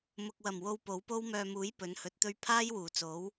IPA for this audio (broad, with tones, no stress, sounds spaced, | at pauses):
m ʊ˨ k̚ w ɐ˨˩ m w o˧ w p o˨˥ w p o˥ w m œː˨ m uː˨˥ j p ɵ˨˥ n h ɵ˨˥ t̚ t̪ ɵ˥ ɥ pʰ aː˥ j w uː˨˩ t͡s o˨˥ w